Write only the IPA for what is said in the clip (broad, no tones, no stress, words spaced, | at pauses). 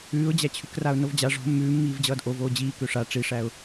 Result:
ʉːʊ̯d͡ʑæt͡ɕʰʉkraʊ̯ novd͡ʑa ʐo̤ mːʉːmːiːvd͡ʑʌːd ʔovoː d͡ʑiː køʂa ʈ͡ʂiʂæʊ̯